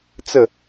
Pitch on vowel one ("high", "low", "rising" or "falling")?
falling